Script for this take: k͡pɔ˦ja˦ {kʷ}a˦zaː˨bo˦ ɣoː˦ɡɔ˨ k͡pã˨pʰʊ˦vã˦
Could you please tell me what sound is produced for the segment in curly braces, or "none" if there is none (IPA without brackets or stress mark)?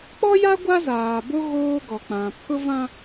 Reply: ɡʷ